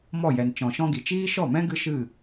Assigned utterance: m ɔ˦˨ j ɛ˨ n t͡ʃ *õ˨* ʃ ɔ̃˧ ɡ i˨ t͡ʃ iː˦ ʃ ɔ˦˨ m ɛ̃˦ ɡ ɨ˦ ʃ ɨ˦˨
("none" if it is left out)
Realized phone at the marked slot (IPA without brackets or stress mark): ɔ̃˨